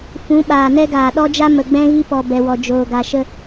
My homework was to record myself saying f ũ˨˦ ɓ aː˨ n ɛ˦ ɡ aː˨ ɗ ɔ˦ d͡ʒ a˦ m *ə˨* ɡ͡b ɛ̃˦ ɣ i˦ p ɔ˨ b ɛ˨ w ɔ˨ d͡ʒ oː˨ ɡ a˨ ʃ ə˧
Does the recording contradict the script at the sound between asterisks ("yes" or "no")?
no